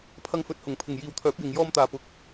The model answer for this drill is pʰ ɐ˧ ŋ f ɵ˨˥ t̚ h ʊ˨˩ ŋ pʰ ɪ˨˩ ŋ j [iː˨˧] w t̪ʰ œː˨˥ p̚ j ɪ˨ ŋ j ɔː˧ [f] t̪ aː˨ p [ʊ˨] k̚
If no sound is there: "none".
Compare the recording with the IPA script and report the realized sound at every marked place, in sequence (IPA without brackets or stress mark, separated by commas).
iː˨, m, ʊ˨